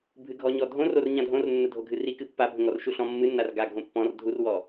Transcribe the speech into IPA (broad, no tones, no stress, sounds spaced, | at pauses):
bʱ ɨ ɡʱ ɔ ɲ ɔ dʱ õ r o r ɲ ã dʱ õ r nː ə dʱ o ɡʱ ɨ r i k ɨ pː a bʱ ə̃ ŋ ɔ r ʃ u ɬ ɔ̃ mː ɨ nː a r ɡ a ɡʱ õ pː ɔ̃ r dʱ u r w ɔ